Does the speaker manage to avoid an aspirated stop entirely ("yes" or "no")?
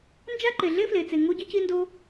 yes